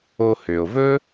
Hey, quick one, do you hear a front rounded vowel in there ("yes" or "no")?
yes